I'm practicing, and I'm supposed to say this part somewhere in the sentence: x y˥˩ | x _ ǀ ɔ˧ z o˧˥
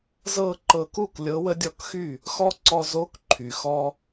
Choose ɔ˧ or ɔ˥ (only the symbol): ɔ˥